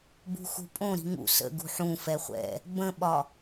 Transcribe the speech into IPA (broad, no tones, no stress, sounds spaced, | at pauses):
b ṳ x ṳ pʼ õ ɾ i̤ ŋ ṵ s ə̰ ɡ ṳ ħ ũ f ɛ χʷ ɛ̰ | b ə̃ ɓ ɒ